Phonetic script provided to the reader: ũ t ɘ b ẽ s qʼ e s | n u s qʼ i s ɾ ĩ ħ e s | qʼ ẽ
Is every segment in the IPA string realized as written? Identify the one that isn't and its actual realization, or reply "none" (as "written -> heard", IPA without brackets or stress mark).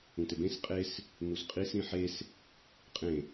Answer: none